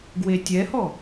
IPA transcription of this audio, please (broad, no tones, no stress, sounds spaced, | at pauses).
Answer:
ɡ w e tʲ ɛ h ɔ